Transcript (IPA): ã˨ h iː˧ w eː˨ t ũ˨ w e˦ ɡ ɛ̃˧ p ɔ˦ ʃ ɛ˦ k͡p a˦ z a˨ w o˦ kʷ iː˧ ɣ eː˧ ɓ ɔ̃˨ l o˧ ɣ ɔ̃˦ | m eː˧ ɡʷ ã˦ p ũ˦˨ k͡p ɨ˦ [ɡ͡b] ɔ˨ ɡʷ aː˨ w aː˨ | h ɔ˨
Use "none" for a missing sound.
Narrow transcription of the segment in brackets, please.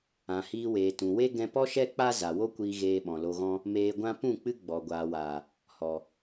ɡ͡b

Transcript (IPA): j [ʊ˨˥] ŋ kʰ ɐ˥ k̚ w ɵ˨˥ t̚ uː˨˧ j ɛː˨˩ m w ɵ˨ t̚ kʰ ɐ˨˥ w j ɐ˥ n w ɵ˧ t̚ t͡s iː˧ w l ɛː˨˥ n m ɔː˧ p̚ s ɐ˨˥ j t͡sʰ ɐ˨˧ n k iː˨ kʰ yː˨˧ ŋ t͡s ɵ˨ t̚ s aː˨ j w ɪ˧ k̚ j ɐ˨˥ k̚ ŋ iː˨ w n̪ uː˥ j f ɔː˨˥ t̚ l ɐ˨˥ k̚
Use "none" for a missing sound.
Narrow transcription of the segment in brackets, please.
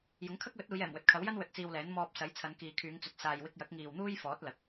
ʊ˨˥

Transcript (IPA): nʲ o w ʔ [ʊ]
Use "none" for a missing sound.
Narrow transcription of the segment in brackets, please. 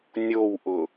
ʊ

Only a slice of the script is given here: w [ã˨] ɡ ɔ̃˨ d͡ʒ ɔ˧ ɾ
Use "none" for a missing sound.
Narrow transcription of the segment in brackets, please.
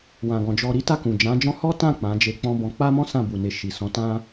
ã˨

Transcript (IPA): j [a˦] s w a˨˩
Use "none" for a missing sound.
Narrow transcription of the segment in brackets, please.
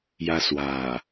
a˦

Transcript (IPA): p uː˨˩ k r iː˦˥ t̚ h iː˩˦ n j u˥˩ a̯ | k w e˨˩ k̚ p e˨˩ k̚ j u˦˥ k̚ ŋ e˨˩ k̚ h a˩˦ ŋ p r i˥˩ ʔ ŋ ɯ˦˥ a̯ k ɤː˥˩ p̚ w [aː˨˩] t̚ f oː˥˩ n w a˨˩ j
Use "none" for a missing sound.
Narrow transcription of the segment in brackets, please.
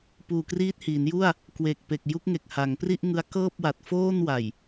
a˨˩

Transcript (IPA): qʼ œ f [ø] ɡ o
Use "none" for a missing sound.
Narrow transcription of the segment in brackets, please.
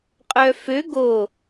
ø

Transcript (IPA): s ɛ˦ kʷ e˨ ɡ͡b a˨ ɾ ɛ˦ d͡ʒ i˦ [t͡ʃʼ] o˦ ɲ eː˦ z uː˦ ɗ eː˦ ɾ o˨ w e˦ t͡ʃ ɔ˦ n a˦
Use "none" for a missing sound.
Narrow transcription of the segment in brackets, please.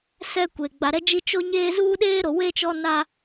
t͡ʃ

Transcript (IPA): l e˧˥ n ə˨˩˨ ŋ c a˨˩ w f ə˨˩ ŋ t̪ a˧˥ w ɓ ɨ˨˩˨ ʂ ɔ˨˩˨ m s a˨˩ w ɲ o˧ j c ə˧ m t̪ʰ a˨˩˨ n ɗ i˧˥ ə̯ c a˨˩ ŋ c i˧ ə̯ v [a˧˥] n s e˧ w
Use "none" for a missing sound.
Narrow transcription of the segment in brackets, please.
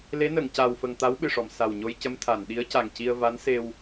a˧˥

